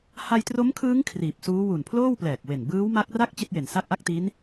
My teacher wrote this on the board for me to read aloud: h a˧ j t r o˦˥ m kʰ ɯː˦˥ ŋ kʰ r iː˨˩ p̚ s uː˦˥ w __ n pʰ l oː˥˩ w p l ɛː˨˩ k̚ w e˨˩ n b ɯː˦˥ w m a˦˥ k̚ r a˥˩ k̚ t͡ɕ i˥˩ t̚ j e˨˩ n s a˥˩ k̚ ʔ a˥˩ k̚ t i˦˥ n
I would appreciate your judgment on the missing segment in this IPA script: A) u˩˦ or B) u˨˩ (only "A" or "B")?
B